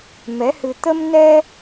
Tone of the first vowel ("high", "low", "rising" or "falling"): rising